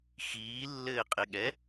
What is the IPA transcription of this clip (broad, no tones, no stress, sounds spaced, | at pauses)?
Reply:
x iː lː ɘː qʼ ɪ ɠ ɛ